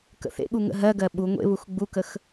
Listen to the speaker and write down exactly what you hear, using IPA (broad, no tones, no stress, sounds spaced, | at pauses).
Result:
k ə̰ θ ḛ ɠ u ŋ ə̰ ɦ ɜ ɡ ɜ ɓ u ŋʷ ḛ β u x ɡ͡b u k ə x